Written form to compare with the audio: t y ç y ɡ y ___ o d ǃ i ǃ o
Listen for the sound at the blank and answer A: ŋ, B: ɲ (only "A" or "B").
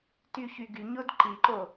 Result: B